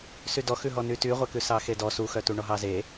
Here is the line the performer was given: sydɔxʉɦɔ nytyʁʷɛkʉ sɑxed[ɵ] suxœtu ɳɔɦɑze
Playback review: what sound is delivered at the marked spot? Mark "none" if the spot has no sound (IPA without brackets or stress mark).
ɔ